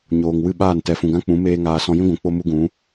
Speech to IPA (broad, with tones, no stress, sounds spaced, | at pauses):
ɲ oː˨ ŋ w ɨ˦˨ ɓ aː˦˨ n t ɛ˨ f ũ˨ ɡ ã˦ k͡p ũ˨˦ m eː˦ ŋ aː˧ s ɔ̃˧ j ĩ˦ ɡʷ ũ˨ k͡p o˦ m u˦ ɡ ũ˨˦